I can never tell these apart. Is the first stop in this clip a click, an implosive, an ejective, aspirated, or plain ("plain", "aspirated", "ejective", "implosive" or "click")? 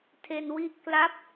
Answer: aspirated